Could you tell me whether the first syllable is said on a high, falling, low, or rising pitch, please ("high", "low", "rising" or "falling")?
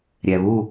low